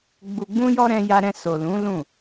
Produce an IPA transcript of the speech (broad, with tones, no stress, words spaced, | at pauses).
ɡ͡bu˨ɡ͡bũ˧jɔ˧ ɾɛ̃˧ja˧ɾɛ̃˧so˨ lũ˨˦lũ˦˨